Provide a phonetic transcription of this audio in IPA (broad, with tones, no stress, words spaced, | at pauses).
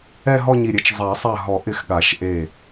ɛ˥˧ɦɔ˥˧ɲi˧˩ɾʲe˨˥t͡ʃ zˤa˨˩˦ sˤa˧˩ɦɔ˨˩˦ ʔɪ˧˩x ɠa˨˩˦ʃʔe˧˩